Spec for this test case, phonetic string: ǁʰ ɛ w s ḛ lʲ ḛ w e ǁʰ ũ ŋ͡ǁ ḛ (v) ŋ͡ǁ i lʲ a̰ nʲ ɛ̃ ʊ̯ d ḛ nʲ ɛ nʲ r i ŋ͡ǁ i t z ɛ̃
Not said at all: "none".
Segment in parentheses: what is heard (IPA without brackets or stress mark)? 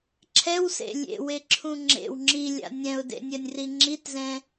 w